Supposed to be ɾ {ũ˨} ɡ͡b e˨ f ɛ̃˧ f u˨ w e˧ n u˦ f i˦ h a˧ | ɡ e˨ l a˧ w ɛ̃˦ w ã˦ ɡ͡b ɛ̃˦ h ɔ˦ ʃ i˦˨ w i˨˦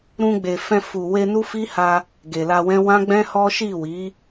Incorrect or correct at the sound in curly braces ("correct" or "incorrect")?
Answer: incorrect